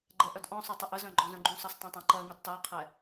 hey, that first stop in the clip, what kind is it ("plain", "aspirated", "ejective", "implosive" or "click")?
click